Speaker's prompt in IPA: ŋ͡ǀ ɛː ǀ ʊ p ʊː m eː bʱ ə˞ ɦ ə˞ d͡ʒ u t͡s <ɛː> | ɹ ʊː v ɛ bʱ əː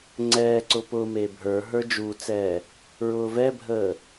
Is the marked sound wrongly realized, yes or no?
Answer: no